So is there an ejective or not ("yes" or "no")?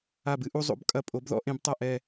yes